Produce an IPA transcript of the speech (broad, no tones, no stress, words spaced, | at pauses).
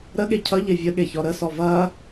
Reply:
ɾəɠe cʰʌʎe vʲəɠeçɔ ɾəsɔ vɐ